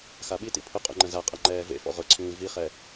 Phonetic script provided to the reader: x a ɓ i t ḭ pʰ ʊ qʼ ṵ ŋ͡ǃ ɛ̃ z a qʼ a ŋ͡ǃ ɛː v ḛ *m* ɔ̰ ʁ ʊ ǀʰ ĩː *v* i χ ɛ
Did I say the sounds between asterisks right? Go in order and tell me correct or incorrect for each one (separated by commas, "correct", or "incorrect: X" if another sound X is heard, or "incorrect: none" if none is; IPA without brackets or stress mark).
incorrect: f, correct